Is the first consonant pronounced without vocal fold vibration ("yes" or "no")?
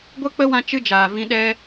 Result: no